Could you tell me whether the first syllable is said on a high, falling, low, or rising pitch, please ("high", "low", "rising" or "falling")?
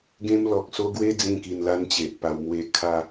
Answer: high